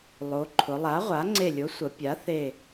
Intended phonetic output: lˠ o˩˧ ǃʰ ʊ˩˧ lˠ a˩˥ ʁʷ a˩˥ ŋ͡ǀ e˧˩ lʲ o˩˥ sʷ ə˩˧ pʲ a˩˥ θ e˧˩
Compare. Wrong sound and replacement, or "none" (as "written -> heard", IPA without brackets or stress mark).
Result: none